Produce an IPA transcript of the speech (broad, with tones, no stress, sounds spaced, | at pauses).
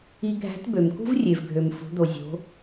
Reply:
i˧ ɡʱ æ̤˧˥ t b ø˩ m k ṳ˥ v rʲ e˩ v ɡʱ ø˩ m f ṳ˩˧ d̪ o˩ zʲ o̤˩˧